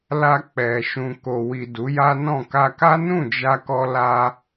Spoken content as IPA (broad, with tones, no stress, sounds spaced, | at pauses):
l a˧ k͡p ɛ˨ ʃ ũ˨ k o˨ w i˨ d u˨˦ j a˦ n ɔ̃˦˨ k a˧ k a˦ n ũ˦˨ d͡ʒ a˧ k ɔ˧ l a˧